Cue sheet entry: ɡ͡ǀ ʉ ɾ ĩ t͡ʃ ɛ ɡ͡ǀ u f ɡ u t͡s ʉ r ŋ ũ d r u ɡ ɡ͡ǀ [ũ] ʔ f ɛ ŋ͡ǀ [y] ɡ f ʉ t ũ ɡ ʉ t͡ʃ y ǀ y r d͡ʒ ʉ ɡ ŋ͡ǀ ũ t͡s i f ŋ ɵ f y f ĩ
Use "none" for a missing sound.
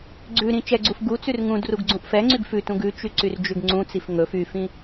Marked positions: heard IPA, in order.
ũ, y

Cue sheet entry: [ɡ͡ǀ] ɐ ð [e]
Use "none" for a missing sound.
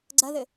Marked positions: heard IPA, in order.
ɡ͡ǀ, ɘ

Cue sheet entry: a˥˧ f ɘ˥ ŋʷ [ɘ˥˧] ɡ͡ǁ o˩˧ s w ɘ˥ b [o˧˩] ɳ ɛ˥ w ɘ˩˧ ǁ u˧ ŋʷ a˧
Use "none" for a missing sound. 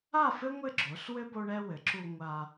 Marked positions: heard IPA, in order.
ɘ˥˧, o˥

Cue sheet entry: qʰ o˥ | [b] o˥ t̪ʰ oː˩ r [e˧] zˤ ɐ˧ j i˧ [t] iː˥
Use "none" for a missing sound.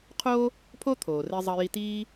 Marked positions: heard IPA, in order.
pʰ, e˧, t

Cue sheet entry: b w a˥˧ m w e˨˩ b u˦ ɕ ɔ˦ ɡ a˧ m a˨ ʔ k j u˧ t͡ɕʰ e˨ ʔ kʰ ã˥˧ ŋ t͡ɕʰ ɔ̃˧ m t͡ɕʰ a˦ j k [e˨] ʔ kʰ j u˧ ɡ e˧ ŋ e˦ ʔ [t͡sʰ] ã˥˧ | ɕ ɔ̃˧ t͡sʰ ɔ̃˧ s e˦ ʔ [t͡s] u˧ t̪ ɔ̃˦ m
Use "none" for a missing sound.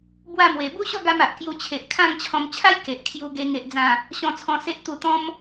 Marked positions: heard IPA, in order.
e˨, d͡z, t̪

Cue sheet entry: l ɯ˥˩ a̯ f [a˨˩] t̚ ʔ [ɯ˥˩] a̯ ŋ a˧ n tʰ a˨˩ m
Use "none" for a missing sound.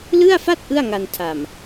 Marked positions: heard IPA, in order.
a˥˩, ɯ˥˩

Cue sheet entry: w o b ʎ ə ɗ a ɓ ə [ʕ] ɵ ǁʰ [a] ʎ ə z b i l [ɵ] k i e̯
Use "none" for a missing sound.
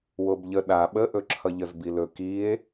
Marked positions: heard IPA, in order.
ʔ, ʌ, ɵ

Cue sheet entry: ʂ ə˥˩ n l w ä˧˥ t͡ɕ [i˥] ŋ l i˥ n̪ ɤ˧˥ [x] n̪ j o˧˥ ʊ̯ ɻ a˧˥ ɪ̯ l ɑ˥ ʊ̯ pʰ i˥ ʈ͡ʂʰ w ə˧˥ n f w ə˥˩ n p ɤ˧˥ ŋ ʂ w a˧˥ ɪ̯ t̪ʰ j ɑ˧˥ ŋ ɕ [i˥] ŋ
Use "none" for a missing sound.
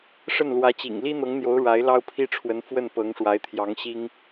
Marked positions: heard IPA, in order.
ḭ˨˩, ŋ, i˥

